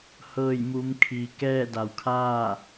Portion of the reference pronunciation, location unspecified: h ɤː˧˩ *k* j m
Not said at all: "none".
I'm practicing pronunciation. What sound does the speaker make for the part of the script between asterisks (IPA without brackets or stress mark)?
none